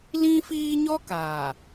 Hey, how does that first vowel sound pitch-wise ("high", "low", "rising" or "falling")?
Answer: high